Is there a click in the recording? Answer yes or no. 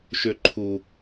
yes